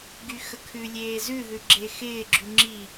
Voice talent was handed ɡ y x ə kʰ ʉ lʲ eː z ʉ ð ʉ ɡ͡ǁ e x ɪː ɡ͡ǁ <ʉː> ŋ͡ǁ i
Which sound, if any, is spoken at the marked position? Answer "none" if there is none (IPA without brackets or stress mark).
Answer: ʉ